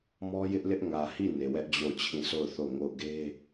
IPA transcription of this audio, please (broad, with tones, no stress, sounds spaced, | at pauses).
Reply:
m ɔ˦ j ɪ˦ ʔ l ɪ˦ ʔ ŋ ä˨ h i˦˨ n e˨ w ɛ˦ ʔ d͡ʑ o˦˨ ʊ̯ t͡ɕʰ ĩ˦˨ sʰ o˦˨ ʊ̯ θ o˦˨ ŋ o˦˨ ʊ̯ ɡ e˦